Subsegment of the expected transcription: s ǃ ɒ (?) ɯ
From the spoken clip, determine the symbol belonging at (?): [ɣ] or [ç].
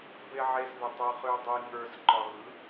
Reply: ɣ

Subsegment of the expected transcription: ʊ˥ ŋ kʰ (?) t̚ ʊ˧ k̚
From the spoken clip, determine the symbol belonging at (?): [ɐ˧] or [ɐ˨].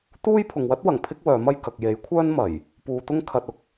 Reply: ɐ˧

